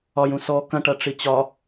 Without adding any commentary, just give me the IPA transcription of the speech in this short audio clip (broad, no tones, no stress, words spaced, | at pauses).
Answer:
ɒjũ sɔ kɐ̃ʈɐʈ͡ʂi t͡ɕɒ